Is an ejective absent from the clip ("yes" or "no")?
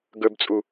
no